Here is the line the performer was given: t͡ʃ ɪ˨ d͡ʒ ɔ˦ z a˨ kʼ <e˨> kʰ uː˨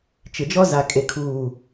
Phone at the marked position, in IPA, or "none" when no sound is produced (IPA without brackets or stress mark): e˨